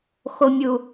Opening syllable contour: low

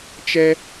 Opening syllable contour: high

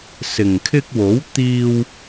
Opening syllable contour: low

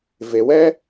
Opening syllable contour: low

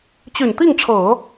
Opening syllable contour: low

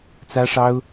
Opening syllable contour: high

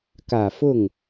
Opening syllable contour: low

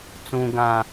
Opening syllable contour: low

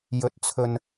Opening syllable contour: rising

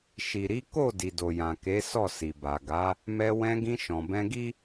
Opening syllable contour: low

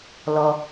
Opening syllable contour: low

